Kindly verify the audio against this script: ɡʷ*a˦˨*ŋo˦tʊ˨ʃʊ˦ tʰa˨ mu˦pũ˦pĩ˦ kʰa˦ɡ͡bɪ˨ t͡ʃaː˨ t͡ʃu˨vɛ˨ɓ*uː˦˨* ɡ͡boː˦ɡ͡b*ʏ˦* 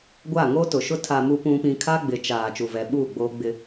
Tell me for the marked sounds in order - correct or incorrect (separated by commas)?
correct, correct, incorrect